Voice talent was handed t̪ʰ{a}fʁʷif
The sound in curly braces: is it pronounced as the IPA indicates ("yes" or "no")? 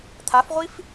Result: yes